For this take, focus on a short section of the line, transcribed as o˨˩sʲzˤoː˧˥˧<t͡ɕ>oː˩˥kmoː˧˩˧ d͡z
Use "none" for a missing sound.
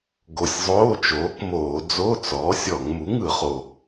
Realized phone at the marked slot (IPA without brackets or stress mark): t͡ʃ